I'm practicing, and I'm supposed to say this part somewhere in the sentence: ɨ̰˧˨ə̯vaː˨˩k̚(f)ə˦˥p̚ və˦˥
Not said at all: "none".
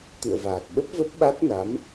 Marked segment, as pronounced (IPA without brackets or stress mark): ɓ